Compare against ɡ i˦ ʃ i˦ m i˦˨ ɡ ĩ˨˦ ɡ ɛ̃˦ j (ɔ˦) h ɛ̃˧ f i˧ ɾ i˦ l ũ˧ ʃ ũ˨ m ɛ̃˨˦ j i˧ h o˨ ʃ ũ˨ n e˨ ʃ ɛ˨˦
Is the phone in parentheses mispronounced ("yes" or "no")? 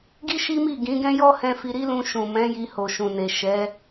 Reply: no